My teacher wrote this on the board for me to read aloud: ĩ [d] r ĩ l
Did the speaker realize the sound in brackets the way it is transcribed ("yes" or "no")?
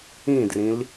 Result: yes